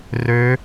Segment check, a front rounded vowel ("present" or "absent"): present